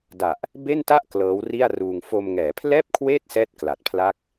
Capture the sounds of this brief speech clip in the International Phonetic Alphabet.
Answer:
d a˨˩ ʔ | b e˥˩ n t a˥˩ ʔ k l ɤː˦˥ w r i˥˩ a̯ r uː˧ ŋ f o˧ m ŋ ɛː˩˦ pʰ l ɛː˥˩ p̚ kʰ w eː˥˩ t̚ s ɛː˥˩ t̚ k l a˨˩ t̚ pʰ l a˥˩ k̚

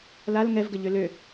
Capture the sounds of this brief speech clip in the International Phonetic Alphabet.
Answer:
l a l ŋ ɛ v ɡ ə ʎ ø l ø

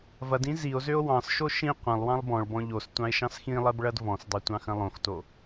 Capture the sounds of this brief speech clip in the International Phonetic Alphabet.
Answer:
v ɐ d ĩ z i o̯ z ø o̯ w ɑ̃ s ʃ o ʃ ĩ qʷ ɐ̃ lˠ w ɑ̃ lˠ b ɔ̃ ɭ b ɔ̃ ʎ o s tʷ ɑ̃ e̯ ʃ ɑ̃ s x ĩ lˠ ɜ b ɭ ɐ d v ɔ̃ s dˤ ø tʷ ɑ̃ x ɐ̃ lˠ õ x t o

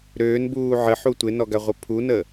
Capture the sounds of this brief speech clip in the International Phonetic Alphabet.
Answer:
ɾ øː n b uː ʕ ə ħ u tʷ ɪ n ɔ ɡ a ʁʷ ə pʰ u n ə

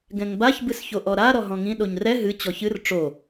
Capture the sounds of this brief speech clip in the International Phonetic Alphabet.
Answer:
ɡ ɛ̃ ŋ b a ç b ɨ s ç o ʔ ɔ ɾ a ɾ ɔ ɦ ɔ̃ ŋ ĩ ɗ o ɲ r ɛ ɦ ɨ t͡ɕ ɔ ç ɨ r ʈ͡ʂ o

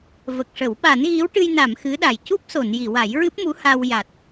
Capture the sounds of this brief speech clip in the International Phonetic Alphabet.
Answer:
v ə˨˩ k̚ ʂ ə˨˩˦ w ɓ a˨˩˦ n ɣ i˧˥ w ʈ ɨ˧ j n a˨˩˨ m x ɨ˧˥ ɗ a˨˩ j c u˦˥ p̚ s o˨˩˨ n j i˨˩˨ w a˨˩˦ j ɹ ɨ˦˥ p̚ m u˧˥ h a˧ w j a˨˩ t̚

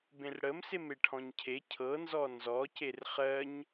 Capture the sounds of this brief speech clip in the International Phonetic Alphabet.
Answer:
b ẽ r ɽ ə m s e m e ʈʰ ɔ̃ ɲ cʰ e cʰ ɤ n z ɔ n z ɔ c e r χ ɜ ɲ

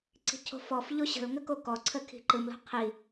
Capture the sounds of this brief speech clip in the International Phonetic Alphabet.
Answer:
ǀ i̤ cʰ o̤ f ɔ f ʎ o ɕ ə̤ l ŋ ə k o k ɔ ǀʰ ə kʰ i̤ ǃ ɯ m l o̤ qʰ i

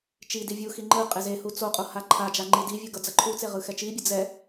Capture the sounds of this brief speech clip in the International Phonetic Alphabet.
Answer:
t͡ʃ i d i vʲ u x i ŋ͡ǃ ɯ qʼ e z e h u t͡s o qʼ o h a ǃʰ a d͡ʒ a ŋ͡ǃ i d i vʲ u ɡ ʌ d͡z ʌ ǃʰ u t͡s e ʁ ɯ x ɛ t͡ʃ i bʲ ɯ d͡z ɛ

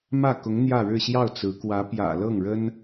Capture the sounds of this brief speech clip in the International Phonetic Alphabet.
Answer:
m ä˥˩ k ʊ˧˥ ŋ n̪ j ä˥˧ ɻ ɻ̩˥˧ ɕ j ɑ˥˩ ʊ̯ t͡s ɹ̩˧˥ k w ä˧˥ p j ä̰˨˩ l ɤ˥˩ ŋ ɻ ə˥ n

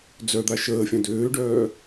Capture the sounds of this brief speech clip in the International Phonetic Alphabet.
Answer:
d͡z œ d̪ a ʃ əː fʲ ã d øː ɖ œː

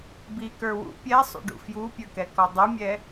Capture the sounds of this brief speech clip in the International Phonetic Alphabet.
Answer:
b i k ə˞ w ṵ pʲ ɛ sˤ ṵ ɖ ṵ f j u pʲ ə˞ k ɛ k ɔ dˤ ɛ mʲ ɛ

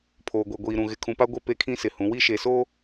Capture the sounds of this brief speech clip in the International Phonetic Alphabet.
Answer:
pʰ oː˨ ɡʷ e˨ ɡʷ iː˨ ɾ ũ˨ ɣ ɪ˨ kʰ ũ˨ p a˦ ɡʷ e˦ p e˦ kʰ ĩ˦ s ɪ˨ h ũ˨˦ w i˦ ʃ e˨ s oː˦

